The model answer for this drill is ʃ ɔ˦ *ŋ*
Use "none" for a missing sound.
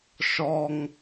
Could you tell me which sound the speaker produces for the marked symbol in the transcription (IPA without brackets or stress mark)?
ŋ